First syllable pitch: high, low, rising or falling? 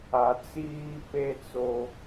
low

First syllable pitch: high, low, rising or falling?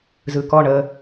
low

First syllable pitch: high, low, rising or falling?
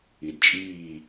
low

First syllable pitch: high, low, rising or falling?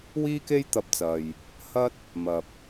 high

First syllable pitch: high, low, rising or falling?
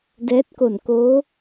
rising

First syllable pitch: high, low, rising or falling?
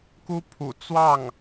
high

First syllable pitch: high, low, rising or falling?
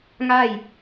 falling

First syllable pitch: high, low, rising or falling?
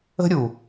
high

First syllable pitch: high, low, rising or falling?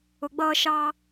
low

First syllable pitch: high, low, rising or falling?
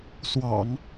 low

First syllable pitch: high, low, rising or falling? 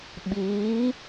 rising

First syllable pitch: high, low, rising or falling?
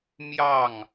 falling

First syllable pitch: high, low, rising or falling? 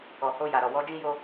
low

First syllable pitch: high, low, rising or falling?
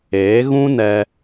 rising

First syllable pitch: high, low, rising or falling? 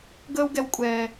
high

